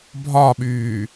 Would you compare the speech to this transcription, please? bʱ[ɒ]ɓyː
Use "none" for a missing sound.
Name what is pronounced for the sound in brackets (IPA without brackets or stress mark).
ɒ